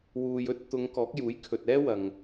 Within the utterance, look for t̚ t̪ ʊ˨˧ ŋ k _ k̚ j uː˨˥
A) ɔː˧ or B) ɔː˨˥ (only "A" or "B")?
B